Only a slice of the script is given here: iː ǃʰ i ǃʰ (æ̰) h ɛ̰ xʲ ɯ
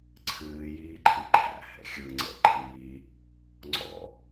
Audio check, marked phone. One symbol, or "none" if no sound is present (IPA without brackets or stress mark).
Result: æ̰